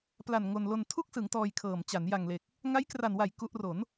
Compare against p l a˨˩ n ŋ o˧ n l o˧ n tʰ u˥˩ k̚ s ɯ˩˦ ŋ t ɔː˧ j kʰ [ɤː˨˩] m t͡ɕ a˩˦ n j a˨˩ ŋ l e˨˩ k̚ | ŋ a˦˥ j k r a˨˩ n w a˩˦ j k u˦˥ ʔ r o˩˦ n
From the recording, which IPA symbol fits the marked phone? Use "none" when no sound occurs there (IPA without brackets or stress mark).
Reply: ɤː˨˩